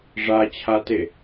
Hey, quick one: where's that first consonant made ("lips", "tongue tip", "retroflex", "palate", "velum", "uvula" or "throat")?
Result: retroflex